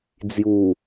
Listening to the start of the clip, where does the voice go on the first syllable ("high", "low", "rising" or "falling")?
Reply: low